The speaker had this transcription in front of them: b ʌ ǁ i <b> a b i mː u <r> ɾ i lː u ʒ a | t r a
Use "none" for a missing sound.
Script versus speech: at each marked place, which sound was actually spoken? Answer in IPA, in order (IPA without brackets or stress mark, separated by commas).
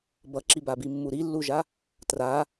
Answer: b, none